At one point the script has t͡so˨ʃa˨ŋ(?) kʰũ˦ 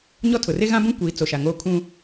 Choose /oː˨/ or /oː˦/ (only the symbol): oː˦